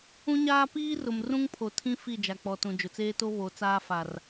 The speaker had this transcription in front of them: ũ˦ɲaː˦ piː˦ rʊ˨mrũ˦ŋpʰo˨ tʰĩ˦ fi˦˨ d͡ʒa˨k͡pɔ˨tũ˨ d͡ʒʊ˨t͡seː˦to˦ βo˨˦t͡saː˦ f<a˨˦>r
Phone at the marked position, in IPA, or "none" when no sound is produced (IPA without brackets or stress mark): a˨